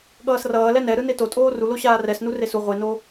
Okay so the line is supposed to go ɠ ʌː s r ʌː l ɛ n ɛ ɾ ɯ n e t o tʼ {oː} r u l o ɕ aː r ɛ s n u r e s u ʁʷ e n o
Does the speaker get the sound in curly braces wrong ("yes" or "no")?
no